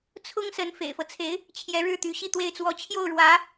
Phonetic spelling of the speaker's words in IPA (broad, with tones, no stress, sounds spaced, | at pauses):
t͡sʰ ʊ˥ ŋ s ə˧˥ n f ḛ˨˩ ɪ̯ f ɤ˦ t͡sʰ e˧˥ ɪ̯ | t͡ɕʰ j ɛ˧˥ ɻ ɻ̩˥˩ t̪ y˧˥ ɕ i˥˧ t̪ w e˥˩ ɪ̯ t͡s w ɔ˥ t͡ɕʰ j o˥˩ ʊ̯ ɻ w ä˧˥